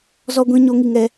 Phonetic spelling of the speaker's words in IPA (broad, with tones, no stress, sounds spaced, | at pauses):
z ɔ˨ ɡʷ ĩ˨ ɲ o˨˦ ŋ i˨ ŋ ɛ˦